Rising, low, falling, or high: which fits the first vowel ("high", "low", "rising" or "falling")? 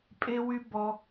high